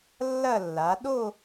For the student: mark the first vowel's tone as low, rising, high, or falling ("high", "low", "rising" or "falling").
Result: falling